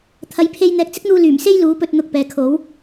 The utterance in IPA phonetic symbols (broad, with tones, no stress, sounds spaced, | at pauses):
t̪ʰ ɐ˨˧ j pʰ e˧ j n̪ ɛː˨ k̚ t͡s ɪ˥ k̚ n̪ uː˧ l yː˨˩ m s e˥ j l uː˨˧ p ɵ˧ t̚ n̪ ʊ˨ k̚ p ɛː˨ kʰ o˨˥ w